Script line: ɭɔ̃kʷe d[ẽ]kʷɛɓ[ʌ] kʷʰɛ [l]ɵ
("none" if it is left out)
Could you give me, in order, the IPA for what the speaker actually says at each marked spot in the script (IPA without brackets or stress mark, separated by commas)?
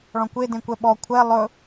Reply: ẽ, ɔ, lˠ